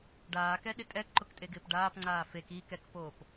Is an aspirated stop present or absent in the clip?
absent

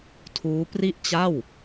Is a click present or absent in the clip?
absent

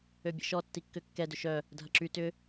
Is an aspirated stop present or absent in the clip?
absent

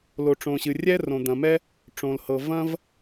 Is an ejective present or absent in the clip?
absent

